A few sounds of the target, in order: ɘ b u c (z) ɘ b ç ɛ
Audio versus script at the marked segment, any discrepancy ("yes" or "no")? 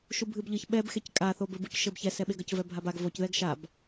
yes